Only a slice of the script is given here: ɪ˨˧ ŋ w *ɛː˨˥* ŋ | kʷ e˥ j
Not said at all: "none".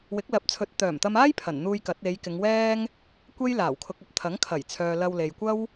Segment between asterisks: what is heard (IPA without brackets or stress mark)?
ɛː˥